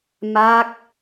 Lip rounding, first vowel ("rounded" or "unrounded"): unrounded